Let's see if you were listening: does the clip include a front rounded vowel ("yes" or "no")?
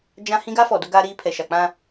no